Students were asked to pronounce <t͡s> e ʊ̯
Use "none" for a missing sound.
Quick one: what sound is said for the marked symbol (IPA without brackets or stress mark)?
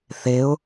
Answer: θ